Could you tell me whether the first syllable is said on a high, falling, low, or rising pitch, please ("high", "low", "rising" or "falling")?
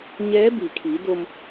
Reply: rising